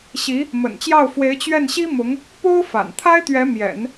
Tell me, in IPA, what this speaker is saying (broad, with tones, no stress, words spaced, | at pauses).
ɕi˧˥ | mə̰˨˩nt͡ɕjɑ˥˩ʊ̯fwe˧˥ɪ̯ t͡ɕɥɛ˥˩nɕi˥mʊ˧˥ŋ | po˥ʊ̯ fa̰˨˩n t̪ʰa˥ɪ̯t̪ɥɛ˧˥ mjɛ̰˨˩˦n